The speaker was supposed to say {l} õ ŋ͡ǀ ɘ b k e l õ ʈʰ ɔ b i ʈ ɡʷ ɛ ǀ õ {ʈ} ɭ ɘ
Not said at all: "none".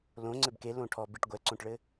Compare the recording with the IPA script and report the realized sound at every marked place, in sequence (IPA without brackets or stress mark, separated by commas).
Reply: l, ʈ